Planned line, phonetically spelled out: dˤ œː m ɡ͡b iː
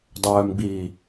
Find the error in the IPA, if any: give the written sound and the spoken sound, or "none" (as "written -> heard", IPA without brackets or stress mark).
none